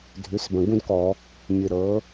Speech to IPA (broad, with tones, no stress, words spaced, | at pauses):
dʱʉ˩˥sbə̃˨˩ɡũ˥dkɔ˧˩˧ | mʲɨ˨˩ɾɤ˩˥